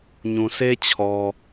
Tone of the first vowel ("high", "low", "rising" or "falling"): low